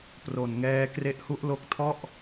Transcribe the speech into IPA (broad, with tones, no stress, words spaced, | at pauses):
pro˨˩nŋɛː˦˥ kre˦˥ʔhu˦˥ʔlo˦˥k̚ tʰɔ˥˩ʔ